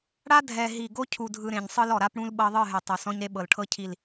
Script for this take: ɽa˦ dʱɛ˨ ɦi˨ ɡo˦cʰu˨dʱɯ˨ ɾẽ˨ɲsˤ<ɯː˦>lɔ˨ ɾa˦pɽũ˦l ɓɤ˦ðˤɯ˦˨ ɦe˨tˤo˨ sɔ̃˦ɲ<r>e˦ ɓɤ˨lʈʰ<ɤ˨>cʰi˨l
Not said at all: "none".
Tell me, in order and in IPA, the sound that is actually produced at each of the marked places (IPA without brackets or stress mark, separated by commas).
ɯ˦, ɾ, ɤ˦